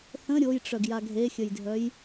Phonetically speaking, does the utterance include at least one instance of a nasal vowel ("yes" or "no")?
yes